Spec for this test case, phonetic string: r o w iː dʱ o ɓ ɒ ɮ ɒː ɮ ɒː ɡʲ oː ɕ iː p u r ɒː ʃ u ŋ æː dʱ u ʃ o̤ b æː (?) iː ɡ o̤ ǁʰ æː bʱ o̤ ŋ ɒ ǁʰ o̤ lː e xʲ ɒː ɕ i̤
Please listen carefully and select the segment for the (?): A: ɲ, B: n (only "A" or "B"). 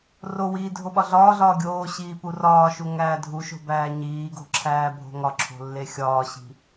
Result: A